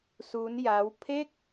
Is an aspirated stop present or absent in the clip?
present